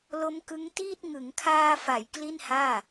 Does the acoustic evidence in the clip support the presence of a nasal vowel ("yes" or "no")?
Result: no